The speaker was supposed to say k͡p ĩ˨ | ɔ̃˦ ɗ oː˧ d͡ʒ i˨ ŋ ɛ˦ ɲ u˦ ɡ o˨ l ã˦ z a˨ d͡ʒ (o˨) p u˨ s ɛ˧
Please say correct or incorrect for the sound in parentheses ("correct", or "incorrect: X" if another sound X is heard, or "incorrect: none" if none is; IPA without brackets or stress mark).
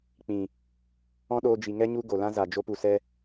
incorrect: o˧